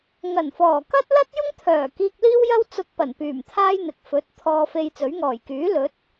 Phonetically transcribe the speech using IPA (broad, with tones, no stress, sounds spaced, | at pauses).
ŋ ɐ˨˩ n f ɔː˨˩ k ɐ˥ t̚ l ɐ˥ t̚ j ʊ˥ ŋ t̪ʰ œː˨˩ k iː˧ k̚ l iː˥ w j ɐ˥ w t͡s ʊ˧ k̚ p ɐ˨˩ n p yː˨˩ m t̪ʰ aː˥ j n̪ ɪ˨ k̚ f ɵ˨˥ t̚ t̪ʰ ɔː˧ f e˧ j t͡s ɵ˨˥ ɥ ŋ ɔː˨˩ j k yː˨˥ l ɵ˨˥ t̚